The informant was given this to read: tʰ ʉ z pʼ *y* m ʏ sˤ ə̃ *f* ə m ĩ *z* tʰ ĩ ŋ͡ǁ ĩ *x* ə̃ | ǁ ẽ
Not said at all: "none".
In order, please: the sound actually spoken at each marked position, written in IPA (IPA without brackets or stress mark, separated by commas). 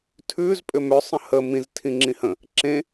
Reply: ʏ, h, z, h